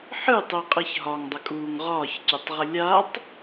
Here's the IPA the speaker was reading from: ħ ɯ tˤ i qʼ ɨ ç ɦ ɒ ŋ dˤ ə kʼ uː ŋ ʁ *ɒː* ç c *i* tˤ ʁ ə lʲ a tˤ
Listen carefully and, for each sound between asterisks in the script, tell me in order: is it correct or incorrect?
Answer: correct, incorrect

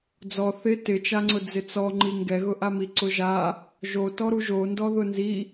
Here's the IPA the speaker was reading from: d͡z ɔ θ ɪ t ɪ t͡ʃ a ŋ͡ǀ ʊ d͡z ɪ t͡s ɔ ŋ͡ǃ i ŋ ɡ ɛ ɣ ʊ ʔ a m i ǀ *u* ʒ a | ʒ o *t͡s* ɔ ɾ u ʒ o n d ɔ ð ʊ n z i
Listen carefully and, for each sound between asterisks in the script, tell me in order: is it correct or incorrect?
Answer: incorrect, incorrect

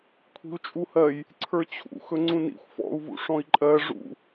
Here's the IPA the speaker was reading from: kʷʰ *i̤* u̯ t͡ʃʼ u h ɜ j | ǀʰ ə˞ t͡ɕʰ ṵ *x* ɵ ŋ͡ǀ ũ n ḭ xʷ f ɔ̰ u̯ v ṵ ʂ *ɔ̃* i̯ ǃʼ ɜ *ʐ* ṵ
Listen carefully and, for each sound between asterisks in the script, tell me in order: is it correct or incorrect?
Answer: correct, correct, correct, correct

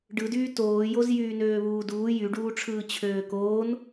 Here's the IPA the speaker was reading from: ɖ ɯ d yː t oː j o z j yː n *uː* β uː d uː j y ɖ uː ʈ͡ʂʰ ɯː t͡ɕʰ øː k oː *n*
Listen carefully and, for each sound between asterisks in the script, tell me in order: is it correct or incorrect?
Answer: incorrect, correct

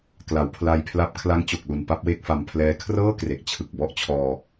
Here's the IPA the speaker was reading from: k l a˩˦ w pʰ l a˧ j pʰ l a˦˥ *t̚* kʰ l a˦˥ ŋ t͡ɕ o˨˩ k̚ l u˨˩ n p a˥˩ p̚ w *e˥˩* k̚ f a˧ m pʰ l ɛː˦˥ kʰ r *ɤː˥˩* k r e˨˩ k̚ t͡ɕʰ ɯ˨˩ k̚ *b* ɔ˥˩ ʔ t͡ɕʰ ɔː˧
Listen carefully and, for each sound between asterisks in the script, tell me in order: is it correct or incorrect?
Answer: incorrect, correct, correct, correct

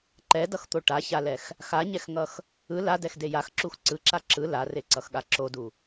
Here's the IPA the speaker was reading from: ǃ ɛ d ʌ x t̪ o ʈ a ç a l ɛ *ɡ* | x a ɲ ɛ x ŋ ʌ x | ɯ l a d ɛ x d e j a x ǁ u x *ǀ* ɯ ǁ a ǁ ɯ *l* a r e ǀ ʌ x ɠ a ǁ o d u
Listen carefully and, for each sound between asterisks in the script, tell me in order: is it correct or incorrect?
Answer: incorrect, correct, correct

